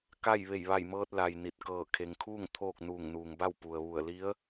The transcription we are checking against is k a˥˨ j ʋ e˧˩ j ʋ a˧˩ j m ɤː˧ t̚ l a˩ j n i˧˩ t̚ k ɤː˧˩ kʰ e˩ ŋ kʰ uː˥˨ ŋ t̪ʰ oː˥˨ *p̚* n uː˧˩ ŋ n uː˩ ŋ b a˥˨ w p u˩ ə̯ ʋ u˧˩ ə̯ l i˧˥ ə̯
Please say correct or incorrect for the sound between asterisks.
incorrect